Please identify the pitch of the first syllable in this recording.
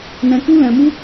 high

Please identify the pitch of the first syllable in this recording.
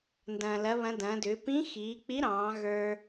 low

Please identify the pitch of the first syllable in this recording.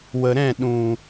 low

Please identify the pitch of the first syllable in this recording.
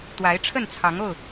rising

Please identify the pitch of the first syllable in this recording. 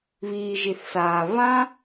low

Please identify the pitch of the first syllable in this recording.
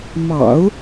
low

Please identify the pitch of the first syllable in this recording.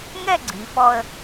falling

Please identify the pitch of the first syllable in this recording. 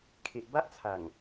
low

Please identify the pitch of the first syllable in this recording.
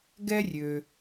high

